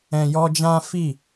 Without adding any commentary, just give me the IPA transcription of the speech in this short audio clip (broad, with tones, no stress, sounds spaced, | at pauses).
ɛ̃˨ j ɔ˧ d͡ʒ ã˦ f i˦˨